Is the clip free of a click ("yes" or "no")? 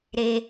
yes